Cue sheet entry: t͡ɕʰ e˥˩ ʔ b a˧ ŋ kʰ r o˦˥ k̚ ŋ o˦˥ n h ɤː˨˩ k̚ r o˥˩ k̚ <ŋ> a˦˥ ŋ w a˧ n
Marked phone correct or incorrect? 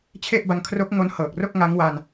correct